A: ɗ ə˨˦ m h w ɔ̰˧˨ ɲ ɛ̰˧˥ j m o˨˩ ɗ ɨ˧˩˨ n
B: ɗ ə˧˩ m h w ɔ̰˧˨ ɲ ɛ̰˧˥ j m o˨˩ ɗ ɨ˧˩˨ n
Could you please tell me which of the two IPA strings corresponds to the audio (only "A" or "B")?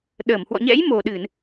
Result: B